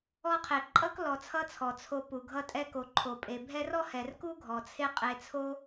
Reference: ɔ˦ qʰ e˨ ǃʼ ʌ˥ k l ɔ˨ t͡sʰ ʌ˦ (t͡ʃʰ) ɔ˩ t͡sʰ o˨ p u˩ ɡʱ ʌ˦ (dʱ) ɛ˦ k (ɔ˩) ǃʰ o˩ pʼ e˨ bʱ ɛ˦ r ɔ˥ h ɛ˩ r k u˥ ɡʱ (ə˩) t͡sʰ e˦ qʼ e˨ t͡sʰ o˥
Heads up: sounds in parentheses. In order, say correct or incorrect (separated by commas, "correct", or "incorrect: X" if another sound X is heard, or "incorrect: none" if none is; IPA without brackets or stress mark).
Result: incorrect: t͡sʰ, incorrect: tʼ, incorrect: o˩, incorrect: ɔ˩